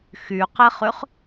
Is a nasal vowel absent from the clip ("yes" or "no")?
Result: yes